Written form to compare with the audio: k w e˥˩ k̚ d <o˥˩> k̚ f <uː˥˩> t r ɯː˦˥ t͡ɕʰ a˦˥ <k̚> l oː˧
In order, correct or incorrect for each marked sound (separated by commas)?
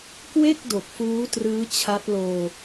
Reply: incorrect, incorrect, incorrect